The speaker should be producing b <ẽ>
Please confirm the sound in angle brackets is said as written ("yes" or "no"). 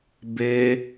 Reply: no